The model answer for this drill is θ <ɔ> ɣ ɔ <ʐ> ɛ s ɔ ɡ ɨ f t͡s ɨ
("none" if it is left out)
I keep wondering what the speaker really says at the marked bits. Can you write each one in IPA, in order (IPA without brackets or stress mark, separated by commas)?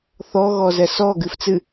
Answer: ɔ, z